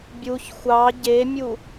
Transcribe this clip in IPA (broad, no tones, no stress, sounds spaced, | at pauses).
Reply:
bʲ u ç xʷ ɑ ɟ e mʲ u